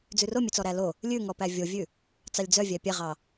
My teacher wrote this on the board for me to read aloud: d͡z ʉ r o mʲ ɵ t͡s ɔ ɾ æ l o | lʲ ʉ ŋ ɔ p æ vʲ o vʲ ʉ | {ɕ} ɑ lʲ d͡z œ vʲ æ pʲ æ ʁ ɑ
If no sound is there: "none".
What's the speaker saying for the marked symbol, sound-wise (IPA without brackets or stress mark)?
t͡s